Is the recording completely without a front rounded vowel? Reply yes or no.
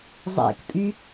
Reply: no